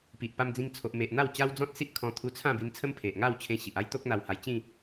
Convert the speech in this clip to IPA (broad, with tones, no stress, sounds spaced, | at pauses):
p i˨ ʔ p a˧ m d͡z ĩ˧ ŋ t͡sʰ o˨ ʔ m e˨ ʔ n̪ a˥˧ w t͡ɕ a˦ w d͡z ɔ̃˦ t̚ s i˦ ʔ kʰ ɔ̃˧ t̪ʰ u˧ t͡sʰ ã˥˧ b i˧ n t͡sʰ ə˦ m pʰ e˨ ʔ ŋ a˥˧ w t͡ɕʰ ẽ˧ ɕ i˨ ʔ a˦ j t̪ o˦ k̚ n̪ a˧ w h a˧ j t͡ɕ ĩ˥˧